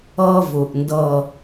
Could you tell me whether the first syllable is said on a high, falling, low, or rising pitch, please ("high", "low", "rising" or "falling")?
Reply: high